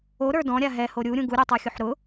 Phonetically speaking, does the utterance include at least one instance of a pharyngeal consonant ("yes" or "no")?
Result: yes